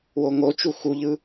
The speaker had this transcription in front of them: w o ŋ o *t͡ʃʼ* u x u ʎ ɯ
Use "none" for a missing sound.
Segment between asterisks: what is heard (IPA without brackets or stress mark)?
t͡ʃ